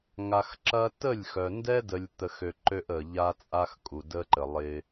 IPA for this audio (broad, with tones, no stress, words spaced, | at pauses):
ŋa˨x ǁɐ˦ tə˦˨lʲxœ˨ ndɛ˦də˨lʲt̪ə˨xø˨ ǃø˦ʔə˨ʎa˦t͡sʼa˦x kʼu˨də˦ǃə˨lˠɪ˦